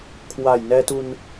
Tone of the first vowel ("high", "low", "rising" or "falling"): low